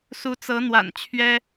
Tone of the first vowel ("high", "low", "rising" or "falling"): rising